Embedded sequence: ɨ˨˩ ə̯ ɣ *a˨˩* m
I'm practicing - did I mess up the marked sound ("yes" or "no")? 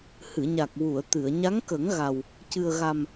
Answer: no